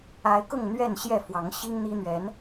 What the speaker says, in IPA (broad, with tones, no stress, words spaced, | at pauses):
a˨˦ɪ̯kʊ˥˨ŋ n̪ɥɛ˥˨nɕjɛ˥˨fwɑ˨˦ŋ ɕi˦ŋn̪i˦ n̪ɥɛ˨˦n